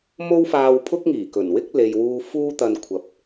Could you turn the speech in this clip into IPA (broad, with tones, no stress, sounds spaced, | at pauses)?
m o˥ w f aː˧ w pʰ ʊ˥ k̚ ŋ iː˨˩ k ɵ˨˩ n w ɪ˥ k̚ l e˨ j w uː˧ f uː˥ t̪ ɐ˧ n kʷʰ ɐ˨ p̚